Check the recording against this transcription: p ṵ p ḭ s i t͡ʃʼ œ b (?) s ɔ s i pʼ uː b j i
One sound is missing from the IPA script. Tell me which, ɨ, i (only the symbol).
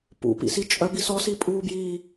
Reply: i